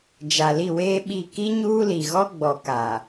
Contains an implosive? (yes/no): yes